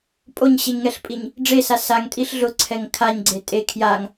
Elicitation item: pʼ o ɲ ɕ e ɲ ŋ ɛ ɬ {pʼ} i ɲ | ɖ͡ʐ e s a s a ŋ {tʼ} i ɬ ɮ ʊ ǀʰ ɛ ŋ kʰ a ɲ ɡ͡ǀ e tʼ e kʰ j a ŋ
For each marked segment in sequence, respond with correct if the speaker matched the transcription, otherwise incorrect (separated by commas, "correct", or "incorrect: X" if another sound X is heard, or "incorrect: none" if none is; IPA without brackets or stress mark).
correct, correct